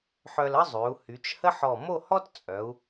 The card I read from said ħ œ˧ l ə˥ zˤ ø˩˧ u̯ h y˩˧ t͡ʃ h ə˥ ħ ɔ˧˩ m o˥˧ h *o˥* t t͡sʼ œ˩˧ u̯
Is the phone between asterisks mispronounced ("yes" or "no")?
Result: yes